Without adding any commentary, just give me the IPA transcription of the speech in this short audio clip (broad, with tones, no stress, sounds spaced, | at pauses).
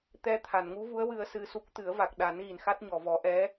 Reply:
t̪ ɛ˧ t̪ʰ a˨˩˨ n ŋ u˧˥ v u˧˥ ə̯ w ɨ˧ ə̯ s ɨ˧ s u˦˥ k̚ t̪ ɨ˨˩˦ ə̯ v a˨˩ k̚ ɗ a˨˩˦ n ɣ i˨˩˨ n x a˦˥ t̚ ɲ ɔ˨˩˨ v ɔ˨˩˦ ʔ ɛ˧˥